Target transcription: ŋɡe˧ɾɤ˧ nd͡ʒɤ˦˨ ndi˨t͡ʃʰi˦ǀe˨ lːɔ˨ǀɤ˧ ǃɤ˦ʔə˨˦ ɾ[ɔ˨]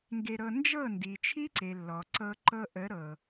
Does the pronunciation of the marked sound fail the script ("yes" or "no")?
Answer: yes